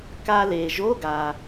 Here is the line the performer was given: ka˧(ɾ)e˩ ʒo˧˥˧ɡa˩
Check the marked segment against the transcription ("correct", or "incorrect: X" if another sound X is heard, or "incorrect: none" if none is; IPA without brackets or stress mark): incorrect: l